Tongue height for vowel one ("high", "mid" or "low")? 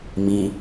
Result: high